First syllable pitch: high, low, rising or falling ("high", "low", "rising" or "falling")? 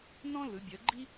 high